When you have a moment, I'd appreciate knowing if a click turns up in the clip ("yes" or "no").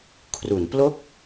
no